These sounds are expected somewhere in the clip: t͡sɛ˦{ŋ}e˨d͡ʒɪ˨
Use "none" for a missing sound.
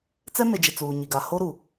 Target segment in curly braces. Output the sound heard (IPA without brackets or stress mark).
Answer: m